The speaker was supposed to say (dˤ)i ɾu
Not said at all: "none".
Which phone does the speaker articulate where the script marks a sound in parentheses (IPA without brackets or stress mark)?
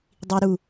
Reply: dˤ